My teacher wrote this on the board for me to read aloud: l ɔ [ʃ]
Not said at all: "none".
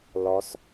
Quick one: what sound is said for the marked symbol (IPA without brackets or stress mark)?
s